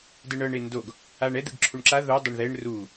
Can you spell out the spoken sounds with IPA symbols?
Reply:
d ɯ ɳ ɤ ɳ e n d o ɡ | a ɳ ɛ d̪ ɯ ɡ ǁʰ u ɳ ǁ a ð o dˤ ɛ ɳ ð ɛ ɳ r u

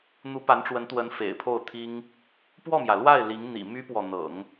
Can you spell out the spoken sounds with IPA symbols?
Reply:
n̪ u˧˥ p a˧˥ n ʈ͡ʂ w ə˧˥ n t̪ w ə˧˥ n f ḛ˨˩ ɪ̯ pʰ o˥˩ ʊ̯ t̪ʰ i˥ ŋ | p w ɔ˥˩ m j ä˩ l w a˥˩ ɪ̯ l i˧˥ ŋ n̪ ḭ˨˩ m y˥ p w ɔ˨ n̪ ɤ̰˨˩˦ ŋ

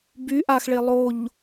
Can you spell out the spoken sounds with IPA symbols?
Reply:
b y ʔ a x ɭ e lˠ o ʎ

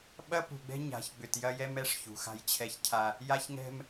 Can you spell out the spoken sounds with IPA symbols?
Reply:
ɓ ɐ˦ p ṳ˨ ɡ͡b ɛ̤˦ ɲ a̤˨˦ ç ɡ͡b ʏ˨ t j ɐ˦ j ɛ˦ m ɛ˦ ʂ ç ṳ˨ x a̤˦ j t͡ɕʰ ɛ˦ ç cʰ a˦ | j a˦ ç ŋ ɛ̤˦ m

